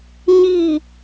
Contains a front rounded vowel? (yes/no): no